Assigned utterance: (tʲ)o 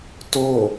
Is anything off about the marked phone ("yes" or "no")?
yes